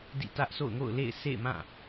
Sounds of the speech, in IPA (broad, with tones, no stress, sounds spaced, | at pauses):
d ḭ˦˨ t ä˦ ʔ sʰ o̰˦˨ ʊ̯ ŋ o̰˦˨ ʊ̯ l ḛ˦˨ ɪ̯ s ḛ˦˨ ɪ̯ m ã˦˨